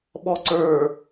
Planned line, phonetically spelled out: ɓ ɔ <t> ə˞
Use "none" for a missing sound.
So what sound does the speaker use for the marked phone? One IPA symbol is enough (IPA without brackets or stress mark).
ǀ